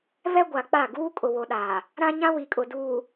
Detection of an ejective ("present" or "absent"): present